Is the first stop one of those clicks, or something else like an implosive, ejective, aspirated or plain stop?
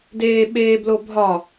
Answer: plain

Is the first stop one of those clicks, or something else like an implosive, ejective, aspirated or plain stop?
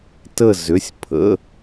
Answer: plain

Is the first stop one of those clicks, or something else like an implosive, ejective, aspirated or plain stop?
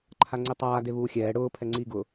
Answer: click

